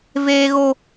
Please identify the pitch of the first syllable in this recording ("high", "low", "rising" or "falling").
high